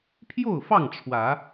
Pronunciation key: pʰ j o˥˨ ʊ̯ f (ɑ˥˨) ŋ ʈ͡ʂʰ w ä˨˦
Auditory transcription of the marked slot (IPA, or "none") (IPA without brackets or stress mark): ɑ˥˨